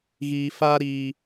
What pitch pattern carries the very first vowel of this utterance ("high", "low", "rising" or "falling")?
low